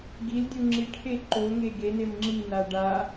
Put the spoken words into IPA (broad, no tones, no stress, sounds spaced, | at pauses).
ɡ i l dʲ u ŋ͡ǁ i ʈʰ e ǃ o ŋ e ɡ e n e m ŋ͡ǁ i n a ɖ a